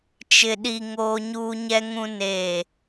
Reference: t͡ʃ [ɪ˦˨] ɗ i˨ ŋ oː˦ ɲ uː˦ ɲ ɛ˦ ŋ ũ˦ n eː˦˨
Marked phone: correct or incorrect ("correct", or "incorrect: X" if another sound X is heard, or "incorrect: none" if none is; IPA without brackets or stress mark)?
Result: incorrect: ɪ˨